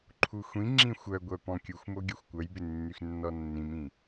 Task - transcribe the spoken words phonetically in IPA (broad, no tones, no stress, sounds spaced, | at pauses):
ǃʰ u xʷ ĩ ŋ͡ǁ ĩ xʷ œ ɡʷ œ p ɔ̃ kʲ u xʷ m o ɡʲ o xʷ kʷ œ j b ɪ nː y x nː ɔ nː ĩ m ĩ